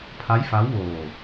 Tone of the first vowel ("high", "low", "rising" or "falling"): rising